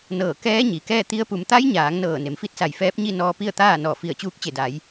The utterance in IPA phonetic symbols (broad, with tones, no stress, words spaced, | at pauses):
nɤː˧˩kɛː˧˥ɲi˩kɛː˥˨ t̪i˧˥ə̯pu˩˧m t̪a˧˥jɲaː˩˧ŋ nɤː˧˩ne˩mfi˥˨t̚sa˧˩j fɛː˧˥p̚ɲi˥˨nɔː˧ pi˥˨ə̯t̪aː˥˨ nɔː˧˩fi˧˩ə̯t͡ɕuː˧˥k̚ t͡ɕe˧˩da˩˧j